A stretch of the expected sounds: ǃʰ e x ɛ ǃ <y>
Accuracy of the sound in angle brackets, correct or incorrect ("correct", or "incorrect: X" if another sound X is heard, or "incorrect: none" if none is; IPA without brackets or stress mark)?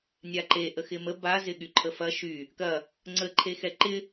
incorrect: ɪ